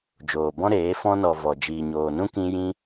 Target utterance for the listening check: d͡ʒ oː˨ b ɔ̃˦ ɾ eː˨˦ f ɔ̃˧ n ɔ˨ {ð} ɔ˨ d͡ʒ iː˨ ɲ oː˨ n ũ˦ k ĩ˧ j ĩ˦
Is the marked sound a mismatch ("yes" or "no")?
yes